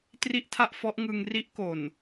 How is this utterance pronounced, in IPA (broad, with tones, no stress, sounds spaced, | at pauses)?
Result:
t r i˥˩ ʔ tʰ a˥˩ ʔ f ɔ˦˥ ʔ ŋ ɯ˧ ŋ r i˦˥ ʔ k o˨˩ n